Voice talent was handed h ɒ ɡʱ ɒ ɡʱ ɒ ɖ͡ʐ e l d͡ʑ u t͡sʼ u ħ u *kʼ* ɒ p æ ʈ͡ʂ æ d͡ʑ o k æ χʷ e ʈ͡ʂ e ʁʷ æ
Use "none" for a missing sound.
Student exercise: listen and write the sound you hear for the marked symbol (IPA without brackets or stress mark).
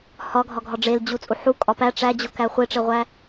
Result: kʼ